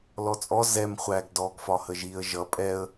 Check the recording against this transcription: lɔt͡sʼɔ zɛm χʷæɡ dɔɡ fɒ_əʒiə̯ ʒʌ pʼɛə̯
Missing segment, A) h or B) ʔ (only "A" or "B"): A